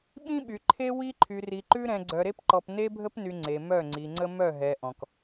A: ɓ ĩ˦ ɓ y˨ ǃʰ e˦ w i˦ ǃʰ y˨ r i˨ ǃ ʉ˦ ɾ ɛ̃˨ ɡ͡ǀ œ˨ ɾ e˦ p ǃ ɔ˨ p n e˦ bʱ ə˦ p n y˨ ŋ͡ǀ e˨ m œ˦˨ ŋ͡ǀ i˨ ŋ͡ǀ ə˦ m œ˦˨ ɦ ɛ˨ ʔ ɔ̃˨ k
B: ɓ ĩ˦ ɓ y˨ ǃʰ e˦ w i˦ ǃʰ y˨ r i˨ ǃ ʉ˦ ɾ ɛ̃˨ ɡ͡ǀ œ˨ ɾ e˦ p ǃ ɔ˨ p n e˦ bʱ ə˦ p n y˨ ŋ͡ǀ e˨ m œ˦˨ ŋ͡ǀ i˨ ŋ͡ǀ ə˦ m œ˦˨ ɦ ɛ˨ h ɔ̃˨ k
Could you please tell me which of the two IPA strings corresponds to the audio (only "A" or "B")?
A